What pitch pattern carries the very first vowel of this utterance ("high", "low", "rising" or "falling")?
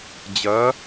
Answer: rising